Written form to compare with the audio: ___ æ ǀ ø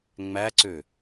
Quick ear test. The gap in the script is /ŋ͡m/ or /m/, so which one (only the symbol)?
ŋ͡m